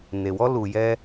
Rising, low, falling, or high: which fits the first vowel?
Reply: low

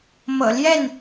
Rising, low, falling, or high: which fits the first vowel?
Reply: low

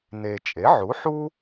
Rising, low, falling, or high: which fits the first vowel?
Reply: low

